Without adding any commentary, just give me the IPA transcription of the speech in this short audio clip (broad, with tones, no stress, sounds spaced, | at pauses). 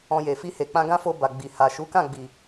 ɔ̃˧ j e˨ f i˧ h e˨ k͡p ã˧ ɡ ã˦ f o˧ b a˨ ɡ͡b i˨ h a˨ ʃ u˨˦ k ã˦˨ ɡ͡b i˨